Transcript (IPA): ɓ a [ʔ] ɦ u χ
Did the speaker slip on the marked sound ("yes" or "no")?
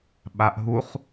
no